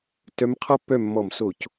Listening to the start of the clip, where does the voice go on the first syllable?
rising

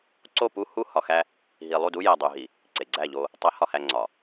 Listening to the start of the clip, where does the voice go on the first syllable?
falling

